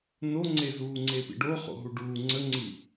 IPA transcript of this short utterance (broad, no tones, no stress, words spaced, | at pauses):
noŋ͡ǀe zuːŋ͡ǀepḭɖo χo̰ɦuɖuː ŋ͡ǀəŋ͡ǀi